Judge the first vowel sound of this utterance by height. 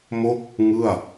mid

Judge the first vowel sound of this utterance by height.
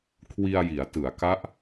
high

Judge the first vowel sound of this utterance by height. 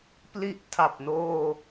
high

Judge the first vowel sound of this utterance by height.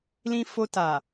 high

